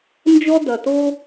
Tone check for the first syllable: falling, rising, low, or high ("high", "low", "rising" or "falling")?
high